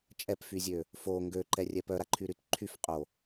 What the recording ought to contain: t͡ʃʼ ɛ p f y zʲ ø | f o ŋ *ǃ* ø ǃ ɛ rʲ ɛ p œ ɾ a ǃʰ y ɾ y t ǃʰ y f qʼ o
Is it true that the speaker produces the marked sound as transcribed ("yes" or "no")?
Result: no